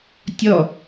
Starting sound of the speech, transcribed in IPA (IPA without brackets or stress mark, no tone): tʲ